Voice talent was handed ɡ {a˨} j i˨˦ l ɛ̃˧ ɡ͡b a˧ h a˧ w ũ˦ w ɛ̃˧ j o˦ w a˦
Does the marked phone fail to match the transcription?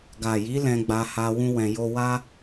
no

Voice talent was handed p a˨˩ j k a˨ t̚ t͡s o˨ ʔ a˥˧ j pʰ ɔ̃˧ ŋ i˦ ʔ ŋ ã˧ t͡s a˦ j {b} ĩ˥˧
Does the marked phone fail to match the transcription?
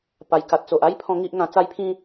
yes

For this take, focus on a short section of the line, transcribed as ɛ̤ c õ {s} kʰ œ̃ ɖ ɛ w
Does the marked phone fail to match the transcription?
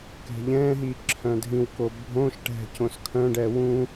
no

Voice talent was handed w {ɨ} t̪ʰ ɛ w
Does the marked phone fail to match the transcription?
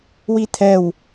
yes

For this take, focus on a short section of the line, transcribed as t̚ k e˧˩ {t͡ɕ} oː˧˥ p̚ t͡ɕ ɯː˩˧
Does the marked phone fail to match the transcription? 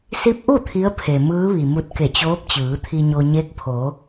no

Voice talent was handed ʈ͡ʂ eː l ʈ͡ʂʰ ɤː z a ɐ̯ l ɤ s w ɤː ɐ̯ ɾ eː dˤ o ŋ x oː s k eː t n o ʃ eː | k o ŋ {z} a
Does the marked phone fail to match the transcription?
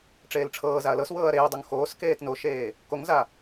no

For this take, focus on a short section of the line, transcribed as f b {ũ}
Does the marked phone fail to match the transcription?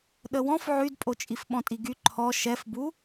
yes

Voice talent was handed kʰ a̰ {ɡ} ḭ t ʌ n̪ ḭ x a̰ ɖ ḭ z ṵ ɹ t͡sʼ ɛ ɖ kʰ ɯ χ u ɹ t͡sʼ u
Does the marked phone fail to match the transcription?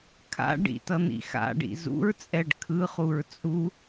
yes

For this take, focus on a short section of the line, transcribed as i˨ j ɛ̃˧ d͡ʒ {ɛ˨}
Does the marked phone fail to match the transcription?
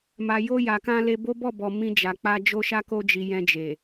yes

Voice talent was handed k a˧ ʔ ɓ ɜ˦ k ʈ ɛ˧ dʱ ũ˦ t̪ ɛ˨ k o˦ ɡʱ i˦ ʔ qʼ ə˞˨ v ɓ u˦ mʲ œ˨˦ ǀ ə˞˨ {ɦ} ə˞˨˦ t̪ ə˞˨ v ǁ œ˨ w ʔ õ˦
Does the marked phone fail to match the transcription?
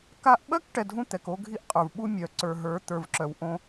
no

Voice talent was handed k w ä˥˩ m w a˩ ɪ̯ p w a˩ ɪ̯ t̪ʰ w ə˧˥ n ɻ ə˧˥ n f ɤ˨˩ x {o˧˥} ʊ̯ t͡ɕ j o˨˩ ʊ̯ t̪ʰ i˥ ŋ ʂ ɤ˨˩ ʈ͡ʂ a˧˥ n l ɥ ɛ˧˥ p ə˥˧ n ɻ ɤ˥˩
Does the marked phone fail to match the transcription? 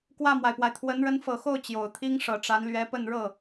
yes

